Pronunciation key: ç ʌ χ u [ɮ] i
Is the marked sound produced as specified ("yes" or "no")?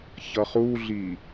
yes